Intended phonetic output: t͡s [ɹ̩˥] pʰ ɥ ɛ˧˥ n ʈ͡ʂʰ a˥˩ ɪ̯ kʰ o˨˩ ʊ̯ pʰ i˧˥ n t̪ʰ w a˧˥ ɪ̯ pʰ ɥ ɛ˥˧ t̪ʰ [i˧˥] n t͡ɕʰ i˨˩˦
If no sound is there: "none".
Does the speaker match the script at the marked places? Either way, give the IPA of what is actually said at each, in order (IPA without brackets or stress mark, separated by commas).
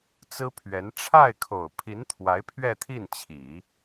ɹ̩˥, i˥˩